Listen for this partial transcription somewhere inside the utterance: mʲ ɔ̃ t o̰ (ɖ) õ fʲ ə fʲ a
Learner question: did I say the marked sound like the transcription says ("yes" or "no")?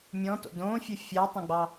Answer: no